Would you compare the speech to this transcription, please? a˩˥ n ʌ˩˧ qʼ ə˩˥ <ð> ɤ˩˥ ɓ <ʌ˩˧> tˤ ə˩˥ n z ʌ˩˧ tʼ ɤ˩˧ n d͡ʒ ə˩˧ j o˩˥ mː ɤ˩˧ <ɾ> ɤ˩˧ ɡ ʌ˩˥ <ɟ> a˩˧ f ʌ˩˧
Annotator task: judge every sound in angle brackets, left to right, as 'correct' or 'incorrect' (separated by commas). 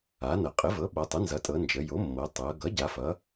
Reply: incorrect, correct, incorrect, correct